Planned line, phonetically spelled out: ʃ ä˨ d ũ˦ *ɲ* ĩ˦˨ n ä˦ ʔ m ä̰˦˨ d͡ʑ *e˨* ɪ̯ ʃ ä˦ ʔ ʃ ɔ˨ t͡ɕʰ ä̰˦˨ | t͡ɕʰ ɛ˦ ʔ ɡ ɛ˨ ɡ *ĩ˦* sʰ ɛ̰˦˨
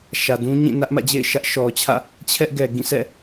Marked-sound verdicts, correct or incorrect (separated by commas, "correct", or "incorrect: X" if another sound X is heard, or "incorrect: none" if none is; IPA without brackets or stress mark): correct, incorrect: ḛ˦˨, incorrect: ĩ˦˨